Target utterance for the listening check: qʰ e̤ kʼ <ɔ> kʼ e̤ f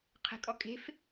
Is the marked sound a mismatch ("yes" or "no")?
no